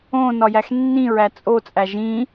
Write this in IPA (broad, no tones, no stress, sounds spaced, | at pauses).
õ n ɒ j æ x nː ĩ ɹ æ t͡sʼ o t͡sʼ æ ʒ ĩ